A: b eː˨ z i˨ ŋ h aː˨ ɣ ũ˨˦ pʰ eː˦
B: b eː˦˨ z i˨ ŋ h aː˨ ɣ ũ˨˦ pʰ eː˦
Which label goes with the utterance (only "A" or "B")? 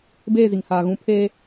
B